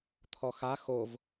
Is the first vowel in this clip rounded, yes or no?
yes